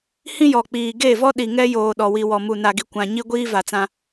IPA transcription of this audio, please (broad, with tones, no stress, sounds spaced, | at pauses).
h ĩ˦ j ɔ˨ k͡p iː˨ ɡ e˦˨ v ɔ˦ ɗ i˨ ŋ ɛ˦ j oː˨ ɗ ɔ˨ w i˨ w ɔ˨ m u˨ n a˨ ɡ i˨ kʷ ã˨ ɲ i˦ ɡʷ iː˦ v a˨ t͡s ã˦